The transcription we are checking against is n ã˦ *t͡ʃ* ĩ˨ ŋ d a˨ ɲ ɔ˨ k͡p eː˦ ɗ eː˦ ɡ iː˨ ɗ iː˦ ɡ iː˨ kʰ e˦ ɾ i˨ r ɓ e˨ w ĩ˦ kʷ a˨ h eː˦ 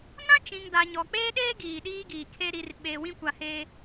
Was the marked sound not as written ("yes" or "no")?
no